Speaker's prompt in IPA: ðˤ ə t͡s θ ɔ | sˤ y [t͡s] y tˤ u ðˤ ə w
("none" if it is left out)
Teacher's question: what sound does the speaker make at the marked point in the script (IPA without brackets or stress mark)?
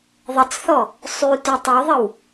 t